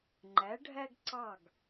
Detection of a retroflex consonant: present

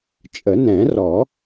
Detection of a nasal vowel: present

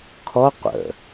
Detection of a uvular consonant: present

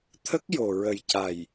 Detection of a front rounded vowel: absent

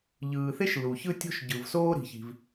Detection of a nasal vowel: absent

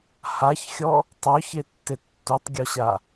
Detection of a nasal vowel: absent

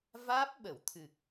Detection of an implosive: present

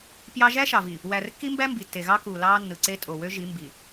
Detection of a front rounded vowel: present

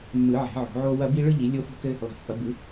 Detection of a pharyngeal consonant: present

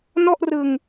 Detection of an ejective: absent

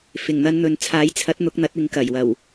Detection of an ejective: absent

